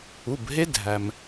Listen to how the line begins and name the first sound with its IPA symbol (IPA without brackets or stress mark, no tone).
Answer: u